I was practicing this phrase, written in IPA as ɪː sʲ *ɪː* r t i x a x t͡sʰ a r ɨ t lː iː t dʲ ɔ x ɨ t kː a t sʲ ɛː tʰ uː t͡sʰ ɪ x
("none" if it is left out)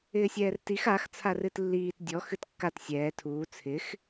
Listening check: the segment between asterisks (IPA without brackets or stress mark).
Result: ɛː